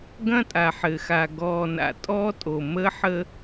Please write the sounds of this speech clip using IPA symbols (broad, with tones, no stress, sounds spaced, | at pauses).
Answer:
ɡ ɐ̃˦ tʼ a˨ ħ ɘ˨ x a˨ ɡ ɔː˨ n a̰˨ tʼ ɔ˦ tʼ o˨ m ə˦ ħ ə˦